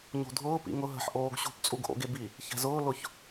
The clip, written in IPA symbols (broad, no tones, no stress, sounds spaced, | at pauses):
ɲ o̤ dʱ ʊː p ḭ ŋ ʊ ɦ ə̤ ħ ʔ oː ɡ ɕ ṳ p t͡sʼ u ɡ ʔ o̰ ɡ e b i | ç ɛ̤ z ʊː l ʊ ç